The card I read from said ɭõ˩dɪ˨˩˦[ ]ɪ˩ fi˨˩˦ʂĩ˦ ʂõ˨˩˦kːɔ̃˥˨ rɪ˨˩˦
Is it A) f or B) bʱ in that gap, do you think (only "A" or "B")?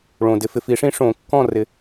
A